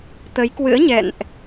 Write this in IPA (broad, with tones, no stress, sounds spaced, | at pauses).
t̪ ə˨˦ j k w ɨ̰˧˥ ə̯ ɲ ɛ̰˧˨ n ʔ